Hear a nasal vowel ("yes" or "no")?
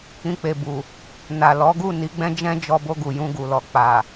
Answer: yes